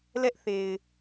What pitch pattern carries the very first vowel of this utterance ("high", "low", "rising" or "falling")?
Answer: high